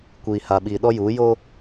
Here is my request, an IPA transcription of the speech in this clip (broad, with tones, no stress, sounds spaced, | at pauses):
kʷ iː˨ h a˨ ɓ iː˨ ɗ ɔ˦ j uː˨˦ j o˦